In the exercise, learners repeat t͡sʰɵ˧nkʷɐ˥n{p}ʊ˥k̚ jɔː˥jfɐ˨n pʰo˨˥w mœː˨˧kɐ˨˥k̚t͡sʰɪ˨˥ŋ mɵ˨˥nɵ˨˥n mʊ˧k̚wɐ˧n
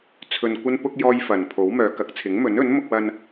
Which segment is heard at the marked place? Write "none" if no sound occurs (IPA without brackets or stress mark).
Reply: p